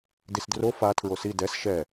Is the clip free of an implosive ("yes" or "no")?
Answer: yes